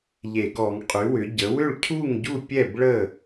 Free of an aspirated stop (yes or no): no